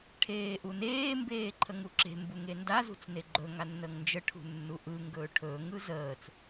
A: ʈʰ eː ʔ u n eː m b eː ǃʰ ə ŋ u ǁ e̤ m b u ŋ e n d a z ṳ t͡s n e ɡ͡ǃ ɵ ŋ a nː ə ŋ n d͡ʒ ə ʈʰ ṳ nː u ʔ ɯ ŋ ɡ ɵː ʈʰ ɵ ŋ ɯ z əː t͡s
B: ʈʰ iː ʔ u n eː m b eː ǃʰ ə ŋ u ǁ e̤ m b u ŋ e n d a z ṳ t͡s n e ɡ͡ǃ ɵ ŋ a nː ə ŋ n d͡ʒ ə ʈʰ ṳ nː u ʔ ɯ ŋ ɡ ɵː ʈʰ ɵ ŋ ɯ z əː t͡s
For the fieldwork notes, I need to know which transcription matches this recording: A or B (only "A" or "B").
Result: A